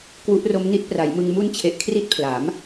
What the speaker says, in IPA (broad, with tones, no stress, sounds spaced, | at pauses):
k w u˦˥ ʔ r o˦˥ m n i˦˥ t̚ p r a˩˦ j m ɯ˧ ŋ m u˦˥ n t͡ɕʰ e˨˩ ʔ kʰ r i˦˥ t̚ pʰ l a˩˦ m